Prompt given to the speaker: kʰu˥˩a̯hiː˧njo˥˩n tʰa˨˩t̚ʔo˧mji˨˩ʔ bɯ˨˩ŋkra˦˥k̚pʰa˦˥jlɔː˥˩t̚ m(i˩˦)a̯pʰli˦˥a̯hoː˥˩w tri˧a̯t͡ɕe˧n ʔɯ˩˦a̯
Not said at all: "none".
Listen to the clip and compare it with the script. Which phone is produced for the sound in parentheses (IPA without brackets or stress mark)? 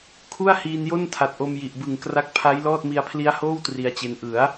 i˧